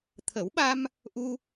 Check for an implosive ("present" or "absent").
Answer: present